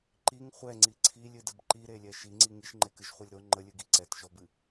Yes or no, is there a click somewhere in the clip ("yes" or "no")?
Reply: yes